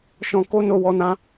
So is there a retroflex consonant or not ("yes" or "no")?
no